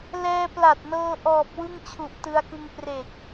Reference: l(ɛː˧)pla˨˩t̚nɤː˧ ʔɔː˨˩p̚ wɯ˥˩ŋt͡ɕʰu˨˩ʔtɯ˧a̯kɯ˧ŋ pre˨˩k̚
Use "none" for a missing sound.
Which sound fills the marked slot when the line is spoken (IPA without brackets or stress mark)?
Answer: ɛː˧